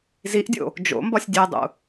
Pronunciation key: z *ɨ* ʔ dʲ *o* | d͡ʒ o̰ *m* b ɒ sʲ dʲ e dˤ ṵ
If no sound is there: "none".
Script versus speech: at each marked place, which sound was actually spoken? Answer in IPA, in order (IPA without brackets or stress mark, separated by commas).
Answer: i, o̰, m